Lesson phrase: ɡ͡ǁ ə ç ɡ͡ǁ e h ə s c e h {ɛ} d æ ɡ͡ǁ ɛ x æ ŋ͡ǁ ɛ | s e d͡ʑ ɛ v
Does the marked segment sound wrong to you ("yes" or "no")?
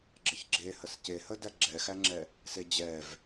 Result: yes